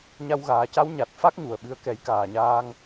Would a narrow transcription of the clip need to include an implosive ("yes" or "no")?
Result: yes